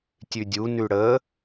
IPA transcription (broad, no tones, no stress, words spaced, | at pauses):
tʲʉdʲu nʉɽə